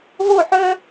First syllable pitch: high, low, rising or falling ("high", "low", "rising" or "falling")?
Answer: falling